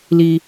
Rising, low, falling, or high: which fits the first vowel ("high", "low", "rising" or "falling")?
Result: high